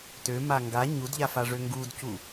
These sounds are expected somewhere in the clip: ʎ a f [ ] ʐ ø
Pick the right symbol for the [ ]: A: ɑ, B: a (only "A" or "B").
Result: B